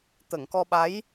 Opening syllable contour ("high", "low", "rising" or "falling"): low